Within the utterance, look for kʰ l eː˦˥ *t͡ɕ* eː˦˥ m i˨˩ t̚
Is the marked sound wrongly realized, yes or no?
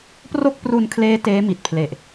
yes